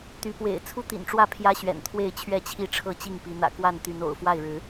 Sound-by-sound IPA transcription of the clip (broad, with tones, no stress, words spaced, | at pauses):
t̪y˨˦pwḛ˨˩ɪ̯ t͡sʰu˦t̪ḭ˨˩nʈ͡ʂwä˥˨ pʰjä˦ɕɥɛ̰˨˩n t̪ʰwe˥˨ɪ̯t͡ɕʰɥɛ˥˨t͡ɕʰi˥˨ ʈ͡ʂʰɤ˥˨t͡ɕi˥˨ŋpi˨˦n̪ä̰˨˩ kwa˥˨nt̪y˨˦no̰˨˩ʊ̯ fwa˥˨ɪ̯ɻɻ̩˨˦